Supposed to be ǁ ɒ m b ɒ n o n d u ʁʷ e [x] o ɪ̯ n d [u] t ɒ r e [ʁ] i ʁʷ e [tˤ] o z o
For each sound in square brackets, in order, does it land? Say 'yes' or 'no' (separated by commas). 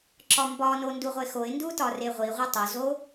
yes, yes, no, yes